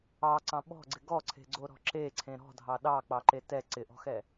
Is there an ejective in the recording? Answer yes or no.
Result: no